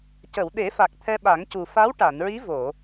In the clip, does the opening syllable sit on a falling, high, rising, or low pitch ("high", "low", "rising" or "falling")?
low